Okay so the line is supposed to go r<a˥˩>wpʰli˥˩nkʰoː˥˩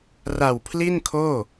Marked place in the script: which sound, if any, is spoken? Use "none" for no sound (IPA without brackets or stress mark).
a˨˩